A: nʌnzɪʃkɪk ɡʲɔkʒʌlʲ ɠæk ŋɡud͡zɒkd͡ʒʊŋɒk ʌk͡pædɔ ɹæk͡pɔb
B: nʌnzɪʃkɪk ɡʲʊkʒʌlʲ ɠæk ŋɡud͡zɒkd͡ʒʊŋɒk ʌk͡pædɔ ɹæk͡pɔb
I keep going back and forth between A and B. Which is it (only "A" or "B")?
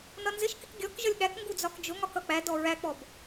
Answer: A